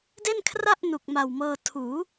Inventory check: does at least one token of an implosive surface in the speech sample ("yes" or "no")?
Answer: no